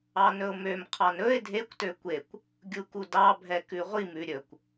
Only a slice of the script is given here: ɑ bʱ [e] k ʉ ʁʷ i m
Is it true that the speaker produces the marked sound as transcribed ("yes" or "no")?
no